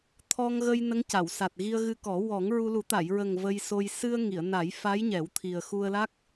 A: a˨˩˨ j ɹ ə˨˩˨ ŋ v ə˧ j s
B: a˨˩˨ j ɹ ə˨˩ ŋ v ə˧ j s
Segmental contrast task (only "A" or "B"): B